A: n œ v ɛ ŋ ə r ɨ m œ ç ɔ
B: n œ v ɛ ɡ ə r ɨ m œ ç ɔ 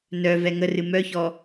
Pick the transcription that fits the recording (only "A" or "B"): A